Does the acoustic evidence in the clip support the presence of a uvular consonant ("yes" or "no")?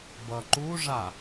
no